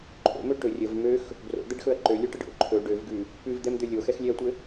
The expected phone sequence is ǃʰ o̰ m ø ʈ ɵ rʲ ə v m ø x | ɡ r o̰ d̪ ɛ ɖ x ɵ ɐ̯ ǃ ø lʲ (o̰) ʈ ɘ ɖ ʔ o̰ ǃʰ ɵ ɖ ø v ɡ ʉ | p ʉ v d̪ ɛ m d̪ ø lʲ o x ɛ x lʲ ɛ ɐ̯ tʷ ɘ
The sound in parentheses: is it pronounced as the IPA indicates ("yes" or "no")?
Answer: no